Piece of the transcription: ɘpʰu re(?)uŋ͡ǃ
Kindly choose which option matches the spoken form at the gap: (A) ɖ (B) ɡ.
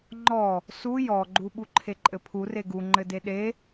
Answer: B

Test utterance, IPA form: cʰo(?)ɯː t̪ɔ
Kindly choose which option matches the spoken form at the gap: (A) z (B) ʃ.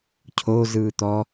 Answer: A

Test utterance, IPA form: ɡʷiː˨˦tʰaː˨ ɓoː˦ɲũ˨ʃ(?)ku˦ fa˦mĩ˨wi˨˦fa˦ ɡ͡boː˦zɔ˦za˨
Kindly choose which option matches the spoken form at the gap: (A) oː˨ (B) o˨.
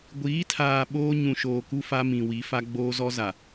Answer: A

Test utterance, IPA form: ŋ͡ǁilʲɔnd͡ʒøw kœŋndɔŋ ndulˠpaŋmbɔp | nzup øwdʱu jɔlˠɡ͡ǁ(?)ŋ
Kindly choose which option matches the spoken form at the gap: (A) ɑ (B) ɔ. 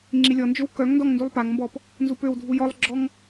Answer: B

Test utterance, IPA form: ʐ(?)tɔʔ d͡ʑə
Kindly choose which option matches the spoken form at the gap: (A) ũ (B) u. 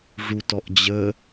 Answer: B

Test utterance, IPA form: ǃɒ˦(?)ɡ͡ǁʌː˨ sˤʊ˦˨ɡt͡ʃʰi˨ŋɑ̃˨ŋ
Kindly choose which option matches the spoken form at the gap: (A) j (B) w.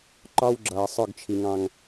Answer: B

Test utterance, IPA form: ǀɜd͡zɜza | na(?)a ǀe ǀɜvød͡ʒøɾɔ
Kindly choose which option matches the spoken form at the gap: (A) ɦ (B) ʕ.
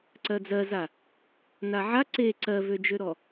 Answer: B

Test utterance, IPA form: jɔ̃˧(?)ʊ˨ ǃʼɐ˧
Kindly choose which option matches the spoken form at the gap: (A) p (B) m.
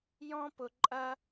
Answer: A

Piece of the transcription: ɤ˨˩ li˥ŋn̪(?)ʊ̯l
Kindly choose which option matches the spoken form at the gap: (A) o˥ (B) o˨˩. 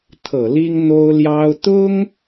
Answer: A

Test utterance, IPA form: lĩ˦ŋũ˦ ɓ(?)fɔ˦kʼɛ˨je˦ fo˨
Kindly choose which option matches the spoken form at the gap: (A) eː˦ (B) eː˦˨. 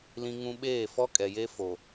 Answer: B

